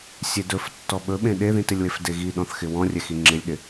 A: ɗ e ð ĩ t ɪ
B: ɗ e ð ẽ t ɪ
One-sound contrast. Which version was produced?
A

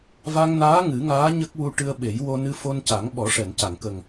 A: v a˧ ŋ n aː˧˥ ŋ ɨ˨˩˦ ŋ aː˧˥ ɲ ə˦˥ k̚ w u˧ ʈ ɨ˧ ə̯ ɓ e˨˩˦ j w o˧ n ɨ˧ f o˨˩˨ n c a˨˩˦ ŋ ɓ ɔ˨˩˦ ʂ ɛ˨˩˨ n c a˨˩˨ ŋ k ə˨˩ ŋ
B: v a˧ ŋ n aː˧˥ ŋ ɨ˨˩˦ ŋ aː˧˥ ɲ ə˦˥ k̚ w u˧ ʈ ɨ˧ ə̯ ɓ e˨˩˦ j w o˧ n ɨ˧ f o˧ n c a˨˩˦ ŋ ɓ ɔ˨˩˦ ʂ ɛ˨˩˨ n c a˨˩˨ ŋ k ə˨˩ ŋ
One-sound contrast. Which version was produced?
B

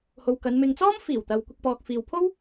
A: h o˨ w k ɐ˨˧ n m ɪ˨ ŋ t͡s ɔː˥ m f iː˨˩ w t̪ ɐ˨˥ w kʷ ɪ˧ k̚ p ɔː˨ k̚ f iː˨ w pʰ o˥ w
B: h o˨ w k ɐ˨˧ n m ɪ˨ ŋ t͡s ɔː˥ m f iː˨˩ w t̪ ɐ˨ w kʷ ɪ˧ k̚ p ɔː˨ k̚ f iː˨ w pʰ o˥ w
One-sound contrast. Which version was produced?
B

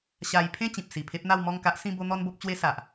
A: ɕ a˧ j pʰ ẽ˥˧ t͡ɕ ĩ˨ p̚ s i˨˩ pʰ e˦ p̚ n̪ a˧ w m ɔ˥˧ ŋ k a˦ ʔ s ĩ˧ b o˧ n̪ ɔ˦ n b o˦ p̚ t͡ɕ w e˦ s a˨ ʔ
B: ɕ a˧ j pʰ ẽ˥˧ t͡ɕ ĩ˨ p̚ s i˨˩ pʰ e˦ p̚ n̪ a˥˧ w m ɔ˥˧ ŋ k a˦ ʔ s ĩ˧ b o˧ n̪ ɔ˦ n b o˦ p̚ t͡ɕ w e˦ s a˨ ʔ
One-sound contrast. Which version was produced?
B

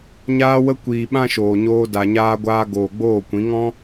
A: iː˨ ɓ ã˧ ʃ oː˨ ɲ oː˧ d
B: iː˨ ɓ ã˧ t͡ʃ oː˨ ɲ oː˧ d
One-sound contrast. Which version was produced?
A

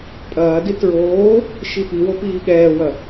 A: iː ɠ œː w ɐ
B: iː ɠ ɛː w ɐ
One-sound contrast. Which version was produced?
B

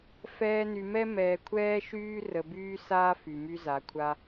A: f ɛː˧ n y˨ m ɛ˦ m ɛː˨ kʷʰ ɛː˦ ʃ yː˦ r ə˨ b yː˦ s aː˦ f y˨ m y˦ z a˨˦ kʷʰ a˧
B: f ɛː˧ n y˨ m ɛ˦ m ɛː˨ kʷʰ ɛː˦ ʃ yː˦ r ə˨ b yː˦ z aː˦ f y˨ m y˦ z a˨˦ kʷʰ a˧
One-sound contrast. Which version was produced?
A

